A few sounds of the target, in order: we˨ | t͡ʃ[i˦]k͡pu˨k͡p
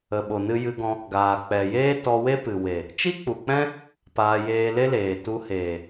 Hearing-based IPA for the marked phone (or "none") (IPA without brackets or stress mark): i˦